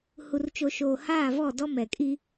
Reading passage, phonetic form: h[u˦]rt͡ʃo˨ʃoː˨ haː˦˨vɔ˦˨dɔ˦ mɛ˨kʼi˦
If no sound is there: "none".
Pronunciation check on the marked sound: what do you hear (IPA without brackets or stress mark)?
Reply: u˨